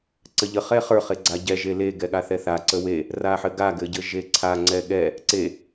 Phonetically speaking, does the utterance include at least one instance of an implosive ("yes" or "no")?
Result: yes